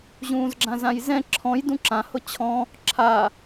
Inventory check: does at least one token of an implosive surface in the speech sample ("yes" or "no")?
no